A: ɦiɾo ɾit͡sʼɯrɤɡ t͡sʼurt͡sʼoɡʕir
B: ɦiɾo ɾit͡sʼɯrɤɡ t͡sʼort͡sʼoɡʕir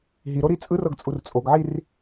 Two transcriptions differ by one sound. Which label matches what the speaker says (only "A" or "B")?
A